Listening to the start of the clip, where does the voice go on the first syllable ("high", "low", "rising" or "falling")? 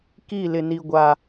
falling